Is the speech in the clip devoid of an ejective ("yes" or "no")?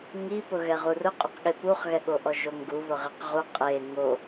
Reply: no